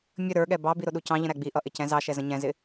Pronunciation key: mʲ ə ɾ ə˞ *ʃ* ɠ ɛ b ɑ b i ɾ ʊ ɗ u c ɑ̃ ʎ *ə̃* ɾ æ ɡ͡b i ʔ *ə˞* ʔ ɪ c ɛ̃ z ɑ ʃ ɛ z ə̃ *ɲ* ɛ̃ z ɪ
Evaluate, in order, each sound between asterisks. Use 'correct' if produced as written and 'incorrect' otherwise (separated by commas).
incorrect, correct, incorrect, correct